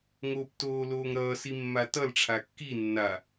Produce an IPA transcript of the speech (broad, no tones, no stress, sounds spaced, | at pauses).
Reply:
ŋ oː p t oː l oː ŋ ɾ ʌː s i mː a t ʌ l ʈ͡ʂʰ a kː i nː a